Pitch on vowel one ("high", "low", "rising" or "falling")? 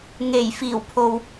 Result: low